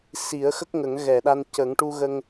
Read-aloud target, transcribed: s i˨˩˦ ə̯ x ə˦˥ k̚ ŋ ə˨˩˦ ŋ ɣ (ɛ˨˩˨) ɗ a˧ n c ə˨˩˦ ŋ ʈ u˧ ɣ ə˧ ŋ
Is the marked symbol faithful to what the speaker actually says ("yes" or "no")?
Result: yes